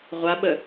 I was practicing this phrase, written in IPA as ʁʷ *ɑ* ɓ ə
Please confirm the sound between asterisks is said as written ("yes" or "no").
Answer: no